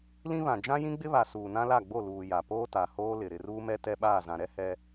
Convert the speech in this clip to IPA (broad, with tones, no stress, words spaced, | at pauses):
lĩ˦βã˨ d͡ʒã˦jĩ˦ɡ͡bɪ˦βa˨ suː˨nã˦la˦˨ɡ͡bo˦˨ luː˨ ja˨poː˦ta˨ hoː˦lɪ˨ ɾɪ˨ruː˦mɛ˦ tɛ˦ɓaː˦˨zã˨ ɾɛ˦hɛ˦